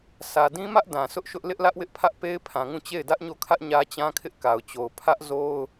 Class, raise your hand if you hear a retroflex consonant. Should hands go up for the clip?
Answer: no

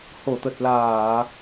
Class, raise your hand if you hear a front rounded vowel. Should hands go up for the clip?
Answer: no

